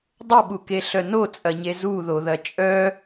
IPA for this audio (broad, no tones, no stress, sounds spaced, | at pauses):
dˤ ə ɓ u k e ɬ œ n o t͡sʼ ɐ ɲ e z u ð o ð ɐ t͡ʃʼ œ